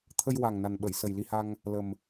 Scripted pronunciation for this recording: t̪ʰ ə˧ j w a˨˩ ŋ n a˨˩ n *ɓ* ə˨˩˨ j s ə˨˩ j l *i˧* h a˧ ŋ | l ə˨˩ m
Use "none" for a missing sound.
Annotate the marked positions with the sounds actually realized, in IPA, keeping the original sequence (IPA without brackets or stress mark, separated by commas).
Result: ɓ, i˧